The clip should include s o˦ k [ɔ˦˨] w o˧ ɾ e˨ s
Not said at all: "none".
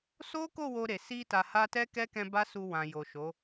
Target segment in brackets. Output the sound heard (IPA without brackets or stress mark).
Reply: o˦˨